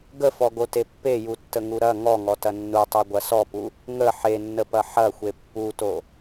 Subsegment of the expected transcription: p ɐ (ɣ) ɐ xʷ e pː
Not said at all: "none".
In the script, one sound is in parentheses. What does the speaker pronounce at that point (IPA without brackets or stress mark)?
ħ